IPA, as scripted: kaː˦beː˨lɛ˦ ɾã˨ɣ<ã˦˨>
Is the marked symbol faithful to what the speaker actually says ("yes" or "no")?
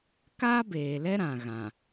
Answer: no